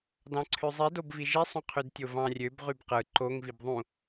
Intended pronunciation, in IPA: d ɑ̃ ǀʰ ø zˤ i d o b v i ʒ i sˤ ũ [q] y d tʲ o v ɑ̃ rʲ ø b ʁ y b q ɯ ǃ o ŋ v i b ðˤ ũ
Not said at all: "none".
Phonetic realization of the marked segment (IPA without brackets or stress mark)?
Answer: qʰ